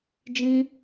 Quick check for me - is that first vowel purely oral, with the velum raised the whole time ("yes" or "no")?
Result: no